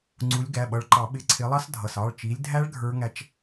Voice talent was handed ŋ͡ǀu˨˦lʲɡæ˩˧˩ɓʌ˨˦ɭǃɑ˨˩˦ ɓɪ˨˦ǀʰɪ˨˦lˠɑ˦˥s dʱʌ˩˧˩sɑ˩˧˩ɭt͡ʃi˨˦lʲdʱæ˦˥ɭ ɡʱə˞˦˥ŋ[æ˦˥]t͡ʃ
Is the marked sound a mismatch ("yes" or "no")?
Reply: no